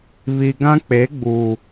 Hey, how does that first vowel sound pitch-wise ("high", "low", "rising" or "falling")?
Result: low